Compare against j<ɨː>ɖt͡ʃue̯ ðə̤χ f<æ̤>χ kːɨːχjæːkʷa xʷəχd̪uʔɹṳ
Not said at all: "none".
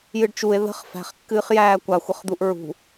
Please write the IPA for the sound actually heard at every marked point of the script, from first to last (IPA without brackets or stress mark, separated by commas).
ɨ, æ̤